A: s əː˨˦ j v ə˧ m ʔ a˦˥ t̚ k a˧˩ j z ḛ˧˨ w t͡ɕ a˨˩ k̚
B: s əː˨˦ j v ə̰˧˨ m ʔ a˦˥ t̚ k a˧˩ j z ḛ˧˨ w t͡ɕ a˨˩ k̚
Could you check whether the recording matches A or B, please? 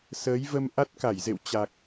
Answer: A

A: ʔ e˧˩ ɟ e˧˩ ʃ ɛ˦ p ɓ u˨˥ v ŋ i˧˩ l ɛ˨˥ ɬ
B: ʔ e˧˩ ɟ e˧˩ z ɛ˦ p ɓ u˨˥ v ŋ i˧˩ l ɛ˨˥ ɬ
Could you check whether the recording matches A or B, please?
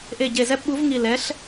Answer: B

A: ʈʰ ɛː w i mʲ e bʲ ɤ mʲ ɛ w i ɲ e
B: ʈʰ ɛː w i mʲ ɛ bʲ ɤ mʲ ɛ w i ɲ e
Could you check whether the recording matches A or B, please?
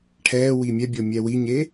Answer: B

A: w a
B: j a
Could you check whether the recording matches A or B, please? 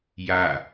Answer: B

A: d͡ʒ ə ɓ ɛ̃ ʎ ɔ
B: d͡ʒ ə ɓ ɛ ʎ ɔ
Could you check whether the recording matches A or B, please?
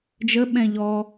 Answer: A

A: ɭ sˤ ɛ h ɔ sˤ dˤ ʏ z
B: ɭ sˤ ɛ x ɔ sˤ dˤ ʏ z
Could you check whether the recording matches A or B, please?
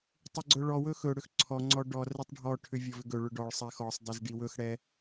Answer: B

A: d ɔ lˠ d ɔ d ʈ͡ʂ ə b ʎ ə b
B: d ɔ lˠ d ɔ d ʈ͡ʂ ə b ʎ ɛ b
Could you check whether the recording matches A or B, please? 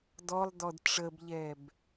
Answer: B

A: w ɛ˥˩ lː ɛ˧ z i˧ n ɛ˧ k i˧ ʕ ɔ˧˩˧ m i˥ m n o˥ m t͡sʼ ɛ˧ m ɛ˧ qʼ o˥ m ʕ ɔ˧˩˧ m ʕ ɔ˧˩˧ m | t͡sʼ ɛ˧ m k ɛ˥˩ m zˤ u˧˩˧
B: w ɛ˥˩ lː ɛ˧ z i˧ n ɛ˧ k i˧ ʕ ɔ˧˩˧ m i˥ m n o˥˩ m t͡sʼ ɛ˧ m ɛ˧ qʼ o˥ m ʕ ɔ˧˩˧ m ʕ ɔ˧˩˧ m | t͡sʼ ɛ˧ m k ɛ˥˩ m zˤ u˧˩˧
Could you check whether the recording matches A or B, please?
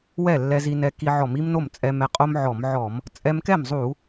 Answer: B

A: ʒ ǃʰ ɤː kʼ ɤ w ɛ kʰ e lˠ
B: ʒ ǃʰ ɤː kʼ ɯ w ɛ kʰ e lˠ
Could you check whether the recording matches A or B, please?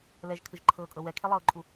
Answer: A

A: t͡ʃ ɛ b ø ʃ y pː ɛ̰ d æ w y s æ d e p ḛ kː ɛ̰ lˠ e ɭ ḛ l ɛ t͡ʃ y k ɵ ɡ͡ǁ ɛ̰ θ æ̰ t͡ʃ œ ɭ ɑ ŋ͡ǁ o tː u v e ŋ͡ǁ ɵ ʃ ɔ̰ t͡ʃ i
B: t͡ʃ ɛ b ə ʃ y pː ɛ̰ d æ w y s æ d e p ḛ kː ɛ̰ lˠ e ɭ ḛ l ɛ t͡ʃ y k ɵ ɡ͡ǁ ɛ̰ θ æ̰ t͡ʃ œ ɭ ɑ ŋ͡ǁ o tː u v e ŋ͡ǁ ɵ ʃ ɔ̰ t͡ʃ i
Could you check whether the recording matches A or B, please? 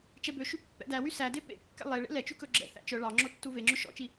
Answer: A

